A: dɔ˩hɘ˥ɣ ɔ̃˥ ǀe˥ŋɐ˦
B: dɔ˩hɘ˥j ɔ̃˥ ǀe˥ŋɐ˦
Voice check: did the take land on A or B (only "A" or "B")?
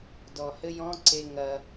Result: B